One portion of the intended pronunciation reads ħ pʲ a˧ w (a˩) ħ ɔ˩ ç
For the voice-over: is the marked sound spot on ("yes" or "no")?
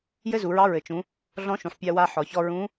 no